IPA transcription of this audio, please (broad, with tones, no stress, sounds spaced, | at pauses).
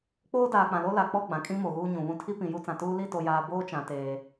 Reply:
k͡p oː˦ d aː˨ k͡p ã˨ l o˦ l a˨ k͡p ɔ˦˨ ɡ͡b ã˨ kʼ ĩ˦ m o˨ ɣ uː˦ ɲ ũ˨ β ũ˦ tʰ i˦ p ĩ˨ j u˦ t͡s ã˨ t uː˦ l i˦˨ t o˨ j aː˨ b oː˦ t͡ʃ ã˨ t eː˨